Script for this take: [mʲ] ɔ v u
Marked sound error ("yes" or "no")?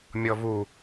no